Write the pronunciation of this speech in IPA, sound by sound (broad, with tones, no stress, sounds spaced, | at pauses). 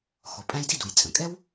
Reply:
x ɔ˩ pʼ æ̃˥ j d i˥ d u˩ j t͡sʼ ə̃˩ kʼ ɛ˥ w